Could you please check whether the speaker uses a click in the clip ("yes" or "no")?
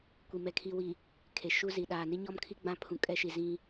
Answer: no